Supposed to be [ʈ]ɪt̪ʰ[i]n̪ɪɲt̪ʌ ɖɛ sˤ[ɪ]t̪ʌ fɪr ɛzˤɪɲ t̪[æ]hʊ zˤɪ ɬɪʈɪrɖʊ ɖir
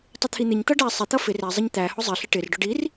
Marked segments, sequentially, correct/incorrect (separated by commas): incorrect, correct, correct, correct